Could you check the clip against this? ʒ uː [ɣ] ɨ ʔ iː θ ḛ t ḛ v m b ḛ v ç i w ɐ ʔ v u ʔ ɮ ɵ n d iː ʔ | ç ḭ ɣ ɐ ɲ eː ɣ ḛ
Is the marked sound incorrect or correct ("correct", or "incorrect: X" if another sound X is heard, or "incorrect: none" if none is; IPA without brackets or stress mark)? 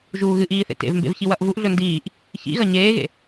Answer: correct